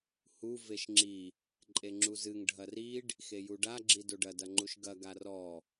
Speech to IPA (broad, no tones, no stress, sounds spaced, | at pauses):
h u v e ʃ ŋ͡ǁ i | ǃʼ e ŋ͡ǁ u z ɨ ŋ ɖʱ ɐ r i ɖ | x e j u ɖ a ɡ͡ǁ i d o ɖ ɐ d ɐ ŋ͡ǃ u ʃ ɡ ɐ ɡ a r ɔ